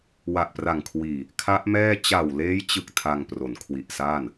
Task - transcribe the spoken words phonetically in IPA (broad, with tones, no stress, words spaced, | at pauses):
wa˨˩ʔpra˨˩ŋ kʰwiː˨˩ | kʰa˦˥ʔmɛː˥˩ t͡ɕa˨˩wleː˦˥jt͡ɕɯ˨˩k̚ tʰa˧ŋpro˩˦nkʰwi˨˩ʔsaː˥˩n